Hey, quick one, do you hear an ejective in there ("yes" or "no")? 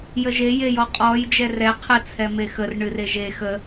yes